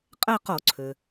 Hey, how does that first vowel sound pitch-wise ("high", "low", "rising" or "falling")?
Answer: falling